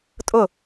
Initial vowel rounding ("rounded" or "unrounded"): rounded